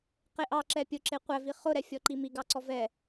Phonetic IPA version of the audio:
q e ʔ ɑ ǁ ɛ pʲ ʊ ǁ e qʷ æ v i χ ʊ ɾ ɛ fʲ ɔ ǃ i m i ɡ ɑ ǀ ɔ v ɛ

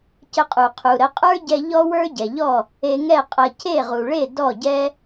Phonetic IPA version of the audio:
c ə˧ qʼ u˩ qʰ u˩ ɾ ə˩˥ qʼ ə˞˥ ɟ ɛ˧ ʎ ɔ˥ w ə˞˥ ɟ ɛ˩ ʎ ɔ˥˩ | e˧ ŋ ɛ˥˩ qʼ ɐ˧ c e˥˩ ʁ u˩ ɭ e˥˩ d ɔ˥˩ ɟ ɛ˥

